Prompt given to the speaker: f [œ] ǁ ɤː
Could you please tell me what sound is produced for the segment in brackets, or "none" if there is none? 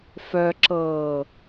œ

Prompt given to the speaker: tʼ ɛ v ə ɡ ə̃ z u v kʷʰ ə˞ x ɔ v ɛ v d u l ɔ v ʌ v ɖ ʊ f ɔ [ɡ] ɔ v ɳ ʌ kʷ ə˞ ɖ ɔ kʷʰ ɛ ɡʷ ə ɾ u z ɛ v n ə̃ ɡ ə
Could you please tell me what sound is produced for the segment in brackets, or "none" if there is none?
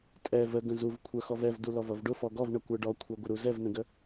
ɡ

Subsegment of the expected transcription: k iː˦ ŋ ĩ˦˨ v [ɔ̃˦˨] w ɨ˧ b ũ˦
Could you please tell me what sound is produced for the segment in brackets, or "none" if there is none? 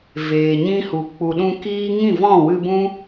ɔ̃˦˨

